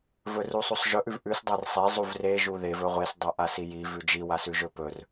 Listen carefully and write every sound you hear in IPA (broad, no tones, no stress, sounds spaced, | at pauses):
v ɵ r u sˤ u sˤ ʒ ɵ ʔ ʉ v ʔ ʉ s dˤ a r sˤ e zˤ u v r e ʒ u ð e v ɵ ʁʷ e s dˤ a ʔ a s i j i v ʉ d͡ʒ i w a s ʉ ʒ ɵ p ɵ r